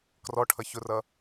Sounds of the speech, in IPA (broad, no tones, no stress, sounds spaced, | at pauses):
k r ɔ ʈʰ ʌ ç ʊ r ʌ